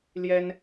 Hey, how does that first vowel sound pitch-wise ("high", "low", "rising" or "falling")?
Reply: high